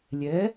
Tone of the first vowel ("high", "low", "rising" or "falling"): rising